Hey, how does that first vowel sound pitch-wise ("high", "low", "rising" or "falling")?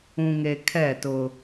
low